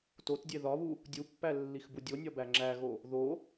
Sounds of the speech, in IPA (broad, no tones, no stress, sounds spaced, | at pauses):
t o t dʲ e ð ɒ β u | dʲ u pː æ lː i x b u dʲ o nʲ ɒ b æ ŋ͡ǁ æ ɣ o | ð o